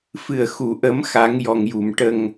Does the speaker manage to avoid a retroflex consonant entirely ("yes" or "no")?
no